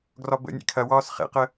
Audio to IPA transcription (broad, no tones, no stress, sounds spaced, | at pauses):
ɡ r ɒ b ə̰ nʲ ḛ kʰ ɐ w ɒː s χ ḛ q ə